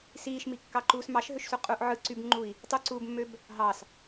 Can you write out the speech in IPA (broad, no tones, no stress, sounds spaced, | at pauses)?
s iː ʃ m i kː ɑ ǃ uː s m ɑ ʃ ɦ ø ʃ s u qʼ u ʔ ʕ ɯ ǀ y b ŋ͡ǃ u i̯ | tˤ u ǀ uː b mː ø b | ɦ ɑ s